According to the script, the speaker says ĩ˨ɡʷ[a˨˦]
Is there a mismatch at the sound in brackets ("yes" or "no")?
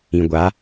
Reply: no